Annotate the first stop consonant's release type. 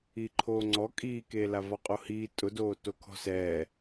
click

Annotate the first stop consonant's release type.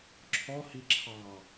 click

